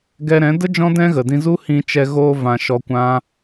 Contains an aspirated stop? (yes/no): no